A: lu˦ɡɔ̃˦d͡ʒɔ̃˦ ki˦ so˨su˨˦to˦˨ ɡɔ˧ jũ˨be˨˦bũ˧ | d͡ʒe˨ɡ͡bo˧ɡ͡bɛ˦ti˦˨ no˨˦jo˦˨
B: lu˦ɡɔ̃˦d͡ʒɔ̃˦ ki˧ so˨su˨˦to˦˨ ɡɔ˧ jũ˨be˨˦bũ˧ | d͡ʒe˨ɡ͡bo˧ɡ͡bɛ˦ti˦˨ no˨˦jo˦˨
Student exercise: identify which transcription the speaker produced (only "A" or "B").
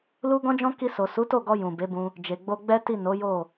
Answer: B